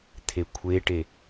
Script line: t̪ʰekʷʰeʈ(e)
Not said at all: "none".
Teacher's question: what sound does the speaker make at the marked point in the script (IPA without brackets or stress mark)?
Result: e